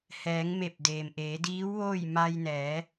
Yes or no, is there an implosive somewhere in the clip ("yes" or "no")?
no